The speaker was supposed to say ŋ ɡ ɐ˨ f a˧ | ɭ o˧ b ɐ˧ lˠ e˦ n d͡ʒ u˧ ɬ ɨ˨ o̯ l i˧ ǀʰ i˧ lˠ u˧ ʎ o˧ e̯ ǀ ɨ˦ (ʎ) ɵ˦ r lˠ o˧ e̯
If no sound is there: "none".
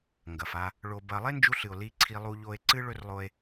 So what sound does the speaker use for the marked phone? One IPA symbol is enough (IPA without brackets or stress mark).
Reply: ɭ